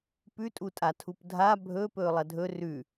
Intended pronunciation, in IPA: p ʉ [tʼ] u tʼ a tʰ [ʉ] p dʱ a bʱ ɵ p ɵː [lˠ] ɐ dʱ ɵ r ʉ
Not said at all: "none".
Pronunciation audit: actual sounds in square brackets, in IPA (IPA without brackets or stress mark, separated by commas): tʼ, u, lˠ